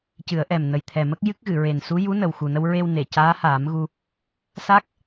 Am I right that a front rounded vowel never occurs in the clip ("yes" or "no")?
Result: yes